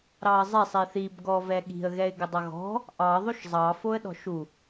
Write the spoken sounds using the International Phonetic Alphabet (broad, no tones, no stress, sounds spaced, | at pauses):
ɾ ɑ ə̯ zˤ ɛ sˤ i θ i b ɡ ɔ v ɛ ɠ i̤ ə̯ ɣ ɛ ɪ̯ ɡ ɪ dˤ ʌ ɣ ɔ̤ | ʔ ɑ ðˤ o ʃ zˤ ɑ f o ə̯ ɗ ɔ̤ ʃ u